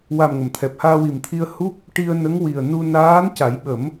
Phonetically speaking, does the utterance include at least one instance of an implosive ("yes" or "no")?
yes